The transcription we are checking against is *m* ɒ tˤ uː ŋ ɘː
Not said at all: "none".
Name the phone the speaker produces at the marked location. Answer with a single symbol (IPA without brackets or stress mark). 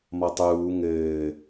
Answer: m